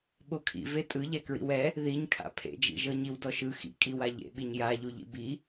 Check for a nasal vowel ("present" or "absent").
absent